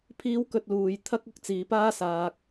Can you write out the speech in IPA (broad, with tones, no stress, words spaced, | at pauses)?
pʰiː˥w kɵ˥t̚luː˧j t̪ʰɐ˥k̚ʊ˥k̚ t͡siː˨paː˥ saː˧k̚